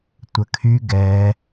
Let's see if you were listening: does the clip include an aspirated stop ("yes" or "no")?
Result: yes